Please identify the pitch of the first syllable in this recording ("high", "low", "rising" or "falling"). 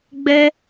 high